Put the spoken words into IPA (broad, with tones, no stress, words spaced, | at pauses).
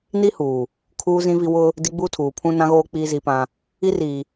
ni˦ huː˨ | kʰuː˦zĩ˦vi˦ wʊ˦ | di˦ ɡ͡buː˦tʰuː˨pʰũ˦ nã˦ɣoː˦ k͡piː˦zi˦pã˦ | i˦riː˨